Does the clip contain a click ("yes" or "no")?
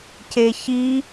no